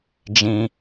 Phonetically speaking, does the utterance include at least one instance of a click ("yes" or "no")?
no